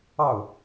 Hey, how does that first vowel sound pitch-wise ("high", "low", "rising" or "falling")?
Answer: falling